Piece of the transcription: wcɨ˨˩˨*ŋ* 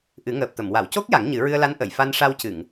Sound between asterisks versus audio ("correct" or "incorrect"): correct